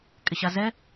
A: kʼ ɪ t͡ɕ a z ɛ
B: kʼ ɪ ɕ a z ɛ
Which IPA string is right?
B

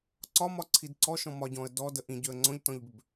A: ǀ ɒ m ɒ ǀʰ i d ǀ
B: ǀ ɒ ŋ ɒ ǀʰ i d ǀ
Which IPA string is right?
A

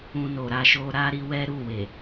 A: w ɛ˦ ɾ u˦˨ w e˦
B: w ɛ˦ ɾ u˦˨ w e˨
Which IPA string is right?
B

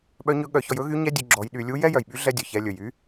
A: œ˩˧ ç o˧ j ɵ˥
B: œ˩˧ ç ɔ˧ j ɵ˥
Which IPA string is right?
B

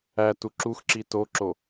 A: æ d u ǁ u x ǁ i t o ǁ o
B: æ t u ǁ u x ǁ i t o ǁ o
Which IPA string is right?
B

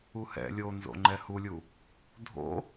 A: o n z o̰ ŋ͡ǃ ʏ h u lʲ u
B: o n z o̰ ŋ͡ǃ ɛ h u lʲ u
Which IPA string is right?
B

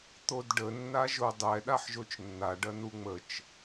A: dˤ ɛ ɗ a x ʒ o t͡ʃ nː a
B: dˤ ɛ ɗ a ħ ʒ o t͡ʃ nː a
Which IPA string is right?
B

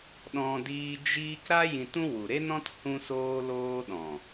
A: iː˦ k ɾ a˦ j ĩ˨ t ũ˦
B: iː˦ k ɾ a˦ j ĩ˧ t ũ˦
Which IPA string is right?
B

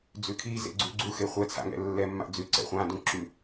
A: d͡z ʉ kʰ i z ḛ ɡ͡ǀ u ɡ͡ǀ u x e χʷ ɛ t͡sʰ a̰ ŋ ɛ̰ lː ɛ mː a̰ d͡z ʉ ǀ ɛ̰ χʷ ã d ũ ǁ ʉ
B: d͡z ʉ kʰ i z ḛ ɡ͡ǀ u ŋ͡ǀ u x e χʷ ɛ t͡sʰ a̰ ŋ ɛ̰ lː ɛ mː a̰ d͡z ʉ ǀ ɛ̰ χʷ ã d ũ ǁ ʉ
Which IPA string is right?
A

